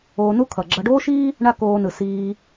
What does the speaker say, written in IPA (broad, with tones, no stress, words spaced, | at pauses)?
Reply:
oː˧nu˥ kʰʌ˩ɡ͡ǁʌ˧ɖoː˥ʃiː˥ | ɳa˥koː˧nɯ˩ siː˧